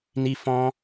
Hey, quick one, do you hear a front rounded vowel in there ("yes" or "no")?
no